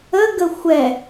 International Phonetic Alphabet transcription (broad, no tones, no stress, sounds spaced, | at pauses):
ə ɡ ə xʷ ɛ